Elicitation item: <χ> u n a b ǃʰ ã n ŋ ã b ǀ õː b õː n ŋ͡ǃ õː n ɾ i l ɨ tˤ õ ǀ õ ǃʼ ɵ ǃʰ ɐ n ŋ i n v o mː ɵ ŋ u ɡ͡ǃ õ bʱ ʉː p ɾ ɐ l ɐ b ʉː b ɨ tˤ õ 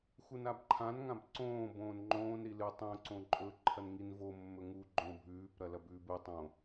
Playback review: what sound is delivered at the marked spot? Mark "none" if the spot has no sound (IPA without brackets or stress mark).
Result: x